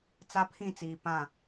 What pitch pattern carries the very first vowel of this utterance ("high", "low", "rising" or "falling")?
high